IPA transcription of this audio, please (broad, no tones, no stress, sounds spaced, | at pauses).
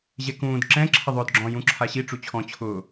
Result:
ʑ ɛ k ũː d ǁ ɛ̃ ǁʰ ɪ ðˤ ʊː d ɡ͡ǁ ɔ̃ j ũ ǁʰ a ɕ i ʈ͡ʂ u t͡ɕʰ ɔ̃ t͡ɕʰ ʊː